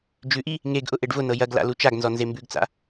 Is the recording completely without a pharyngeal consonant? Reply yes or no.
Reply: yes